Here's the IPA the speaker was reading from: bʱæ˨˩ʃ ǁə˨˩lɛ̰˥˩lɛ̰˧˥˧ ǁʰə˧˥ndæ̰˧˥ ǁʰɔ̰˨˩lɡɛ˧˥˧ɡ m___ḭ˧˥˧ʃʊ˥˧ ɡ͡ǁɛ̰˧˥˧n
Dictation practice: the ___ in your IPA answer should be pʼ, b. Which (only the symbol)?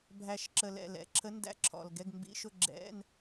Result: b